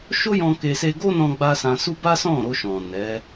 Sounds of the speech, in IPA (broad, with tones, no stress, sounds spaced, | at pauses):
ʃ o˦ j ɔ̃˧ k e˧ s e˧ ɡ o˦ n ɔ̃˧ ɡ͡b a˧ s ã˧ s u˦ b a˦ s ɔ̃˦˨ ɾ o˧ ʃ ɔ̃˨ n ɛ˨˦